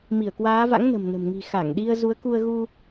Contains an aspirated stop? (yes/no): no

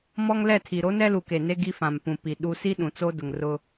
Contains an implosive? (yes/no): yes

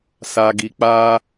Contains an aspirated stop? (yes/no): no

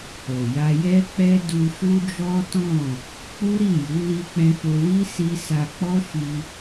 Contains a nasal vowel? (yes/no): yes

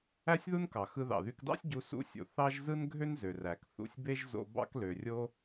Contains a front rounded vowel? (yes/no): yes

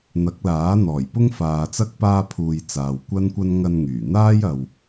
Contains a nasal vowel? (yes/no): no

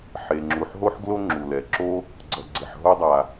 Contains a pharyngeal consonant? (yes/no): yes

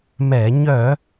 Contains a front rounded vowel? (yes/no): yes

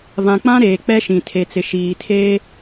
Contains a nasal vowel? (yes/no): yes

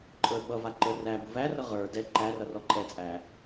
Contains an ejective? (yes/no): yes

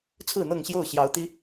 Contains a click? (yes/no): no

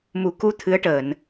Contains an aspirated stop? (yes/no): yes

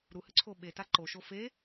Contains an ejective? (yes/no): no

